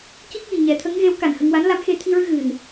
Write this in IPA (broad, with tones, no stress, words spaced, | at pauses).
ci˦˥k̚ji˨˩ ɲɛ˨˩˦t̪ʰə˧˥ŋɣe˧˥w ka˨˩nhə˧ŋ wa˧˥nla˧˥mxe˧ t̪ʰi˧ɹɨ˧ ɣɨ˨˩n